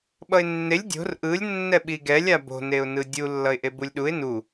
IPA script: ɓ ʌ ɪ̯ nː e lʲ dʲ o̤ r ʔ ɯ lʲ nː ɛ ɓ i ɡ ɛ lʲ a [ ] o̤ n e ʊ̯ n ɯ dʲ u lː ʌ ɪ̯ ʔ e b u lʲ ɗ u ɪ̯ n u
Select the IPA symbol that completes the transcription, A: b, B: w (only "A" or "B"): A